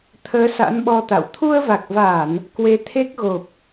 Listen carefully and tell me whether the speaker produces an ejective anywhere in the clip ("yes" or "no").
no